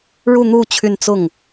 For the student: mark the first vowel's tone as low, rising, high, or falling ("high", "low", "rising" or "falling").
falling